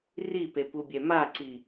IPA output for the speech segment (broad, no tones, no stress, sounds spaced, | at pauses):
r i p e p u bʲ ɛ m a ǀ i